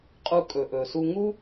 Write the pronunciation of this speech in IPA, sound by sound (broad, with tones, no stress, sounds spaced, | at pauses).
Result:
qʼ u˧ kʼ ɵ˩ ʔ ɵ˩ s u˧ ŋ u˥